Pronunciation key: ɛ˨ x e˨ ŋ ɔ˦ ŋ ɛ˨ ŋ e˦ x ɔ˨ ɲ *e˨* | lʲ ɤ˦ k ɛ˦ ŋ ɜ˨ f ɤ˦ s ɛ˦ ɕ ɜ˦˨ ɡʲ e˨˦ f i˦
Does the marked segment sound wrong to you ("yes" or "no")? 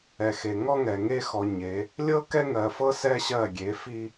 yes